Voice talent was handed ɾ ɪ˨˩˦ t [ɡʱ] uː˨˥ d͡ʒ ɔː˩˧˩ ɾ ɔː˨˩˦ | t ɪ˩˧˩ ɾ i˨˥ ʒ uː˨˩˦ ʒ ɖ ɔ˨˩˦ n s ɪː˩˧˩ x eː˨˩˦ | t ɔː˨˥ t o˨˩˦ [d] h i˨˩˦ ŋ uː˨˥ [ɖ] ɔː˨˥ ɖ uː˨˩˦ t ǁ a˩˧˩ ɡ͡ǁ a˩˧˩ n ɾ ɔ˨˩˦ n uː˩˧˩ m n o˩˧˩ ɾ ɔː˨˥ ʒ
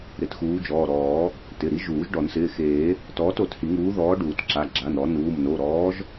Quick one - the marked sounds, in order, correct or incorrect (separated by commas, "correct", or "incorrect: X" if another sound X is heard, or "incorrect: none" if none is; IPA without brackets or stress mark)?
incorrect: x, incorrect: t, incorrect: ð